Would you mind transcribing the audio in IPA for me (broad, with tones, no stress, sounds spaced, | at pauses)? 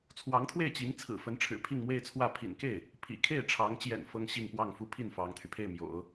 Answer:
t͡sʰ w ɑ˧˥ ŋ t̪ʰ w e˥˩ ɪ̯ t͡ɕ i˧˥ ŋ t͡sʰ ɹ̩˨˩ f ə˧˥ n ʈ͡ʂʰ ɻ̩˨˩ pʰ i˥˧ ŋ m w e˥˧ ɪ̯ t͡sʰ w ä˥˩ pʰ ḭ˨˩ n k e˥˩ ɪ̯ | pʰ ḭ˨˩ kʰ e˥˩ ɪ̯ ʈ͡ʂʰ ɑ˧˥ ŋ t͡ɕ j ɛ̰˨˩ n f ɤ˥ ŋ ɕ i˥˧ ŋ p w ɑ˥˩ ŋ f u˥ pʰ i˥˩ n f ɑ˥ ŋ t̪ʰ y˨ pʰ e˥˩ ɪ̯ m j o̰˨˩˦ ʊ̯